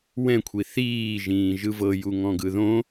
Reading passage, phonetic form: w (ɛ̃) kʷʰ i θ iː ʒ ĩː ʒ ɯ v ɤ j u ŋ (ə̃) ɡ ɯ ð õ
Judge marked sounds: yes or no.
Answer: yes, no

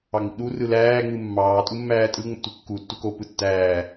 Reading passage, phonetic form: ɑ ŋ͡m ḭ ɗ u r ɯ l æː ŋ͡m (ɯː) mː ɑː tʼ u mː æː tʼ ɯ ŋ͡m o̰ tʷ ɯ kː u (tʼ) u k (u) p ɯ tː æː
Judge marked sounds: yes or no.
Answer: no, no, no

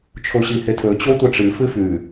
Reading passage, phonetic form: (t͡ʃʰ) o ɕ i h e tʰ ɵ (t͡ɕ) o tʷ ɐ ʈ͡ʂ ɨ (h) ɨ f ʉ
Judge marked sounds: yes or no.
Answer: yes, yes, no

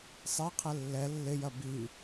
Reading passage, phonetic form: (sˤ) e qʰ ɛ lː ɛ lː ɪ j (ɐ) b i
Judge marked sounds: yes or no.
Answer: yes, yes

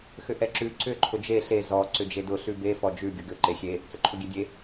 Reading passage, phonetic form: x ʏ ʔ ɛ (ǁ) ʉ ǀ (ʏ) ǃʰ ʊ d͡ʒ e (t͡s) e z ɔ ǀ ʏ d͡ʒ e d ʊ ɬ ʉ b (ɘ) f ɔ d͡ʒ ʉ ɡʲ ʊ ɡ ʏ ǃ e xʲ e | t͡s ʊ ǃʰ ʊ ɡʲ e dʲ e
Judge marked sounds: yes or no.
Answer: yes, yes, no, no

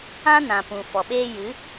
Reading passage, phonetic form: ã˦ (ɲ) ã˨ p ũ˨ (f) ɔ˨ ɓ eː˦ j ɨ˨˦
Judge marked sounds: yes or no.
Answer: no, yes

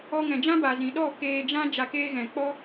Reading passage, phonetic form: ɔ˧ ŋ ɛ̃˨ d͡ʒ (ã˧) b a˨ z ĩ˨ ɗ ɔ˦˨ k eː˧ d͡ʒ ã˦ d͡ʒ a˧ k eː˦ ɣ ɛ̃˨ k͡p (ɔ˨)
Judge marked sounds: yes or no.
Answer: no, no

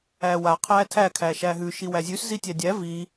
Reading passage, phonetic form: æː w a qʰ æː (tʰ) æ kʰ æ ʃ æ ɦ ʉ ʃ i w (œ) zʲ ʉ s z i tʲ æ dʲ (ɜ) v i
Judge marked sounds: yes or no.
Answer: yes, no, no

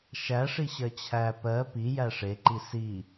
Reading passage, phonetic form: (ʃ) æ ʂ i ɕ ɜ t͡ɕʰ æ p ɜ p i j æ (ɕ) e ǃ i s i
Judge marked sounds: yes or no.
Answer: yes, no

